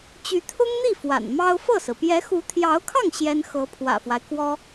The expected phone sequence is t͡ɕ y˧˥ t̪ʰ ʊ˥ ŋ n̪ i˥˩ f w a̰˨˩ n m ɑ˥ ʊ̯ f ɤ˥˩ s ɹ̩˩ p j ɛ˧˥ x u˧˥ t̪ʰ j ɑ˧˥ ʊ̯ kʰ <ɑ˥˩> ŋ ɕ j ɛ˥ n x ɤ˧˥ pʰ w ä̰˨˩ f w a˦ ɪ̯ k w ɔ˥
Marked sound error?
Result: no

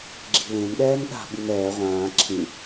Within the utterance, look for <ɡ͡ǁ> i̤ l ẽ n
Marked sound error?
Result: no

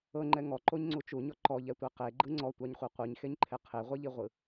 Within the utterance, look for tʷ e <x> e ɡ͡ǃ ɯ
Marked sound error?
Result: yes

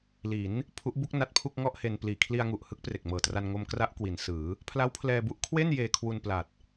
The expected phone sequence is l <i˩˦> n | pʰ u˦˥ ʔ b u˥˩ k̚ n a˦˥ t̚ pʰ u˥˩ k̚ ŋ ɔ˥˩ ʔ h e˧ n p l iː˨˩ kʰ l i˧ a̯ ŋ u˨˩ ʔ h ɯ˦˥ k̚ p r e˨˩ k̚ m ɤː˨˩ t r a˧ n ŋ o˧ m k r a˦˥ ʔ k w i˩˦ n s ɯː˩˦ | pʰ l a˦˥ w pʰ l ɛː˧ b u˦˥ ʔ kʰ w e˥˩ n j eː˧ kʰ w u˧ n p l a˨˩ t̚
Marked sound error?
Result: no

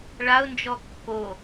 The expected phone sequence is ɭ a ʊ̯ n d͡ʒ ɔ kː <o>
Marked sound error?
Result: no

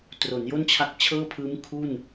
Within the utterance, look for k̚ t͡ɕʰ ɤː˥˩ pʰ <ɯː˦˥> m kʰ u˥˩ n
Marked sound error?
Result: no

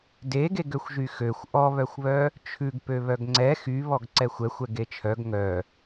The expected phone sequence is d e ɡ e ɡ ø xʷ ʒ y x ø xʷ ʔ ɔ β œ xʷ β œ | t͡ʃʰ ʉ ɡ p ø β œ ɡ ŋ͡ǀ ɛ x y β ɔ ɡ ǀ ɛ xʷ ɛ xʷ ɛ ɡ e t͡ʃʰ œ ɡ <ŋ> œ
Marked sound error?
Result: no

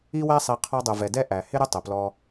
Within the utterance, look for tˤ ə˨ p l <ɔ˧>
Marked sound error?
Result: no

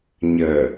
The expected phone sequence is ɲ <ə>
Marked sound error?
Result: no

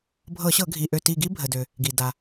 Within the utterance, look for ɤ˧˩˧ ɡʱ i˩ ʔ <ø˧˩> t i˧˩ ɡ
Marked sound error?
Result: no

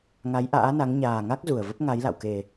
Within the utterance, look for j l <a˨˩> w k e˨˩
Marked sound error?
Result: yes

